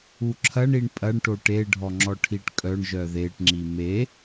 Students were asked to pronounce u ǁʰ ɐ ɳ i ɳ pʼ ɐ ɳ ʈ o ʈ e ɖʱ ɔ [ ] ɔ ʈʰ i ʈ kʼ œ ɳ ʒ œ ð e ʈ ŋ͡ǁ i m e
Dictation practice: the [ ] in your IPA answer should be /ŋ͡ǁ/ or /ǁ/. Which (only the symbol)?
ŋ͡ǁ